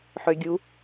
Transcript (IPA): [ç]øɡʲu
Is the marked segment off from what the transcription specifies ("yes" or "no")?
yes